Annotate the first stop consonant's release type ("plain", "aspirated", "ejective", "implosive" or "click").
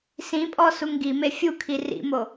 ejective